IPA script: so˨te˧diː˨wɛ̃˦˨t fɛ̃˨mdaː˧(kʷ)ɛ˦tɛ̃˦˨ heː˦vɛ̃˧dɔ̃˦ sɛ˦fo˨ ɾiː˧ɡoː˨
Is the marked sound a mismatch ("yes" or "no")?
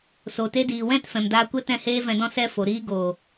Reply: no